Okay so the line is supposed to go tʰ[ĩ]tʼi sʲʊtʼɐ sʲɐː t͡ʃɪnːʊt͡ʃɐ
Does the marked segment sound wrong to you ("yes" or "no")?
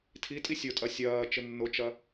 yes